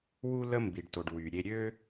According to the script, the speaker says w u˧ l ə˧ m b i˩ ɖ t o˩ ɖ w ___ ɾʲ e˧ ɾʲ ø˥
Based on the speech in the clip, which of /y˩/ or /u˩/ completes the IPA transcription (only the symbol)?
y˩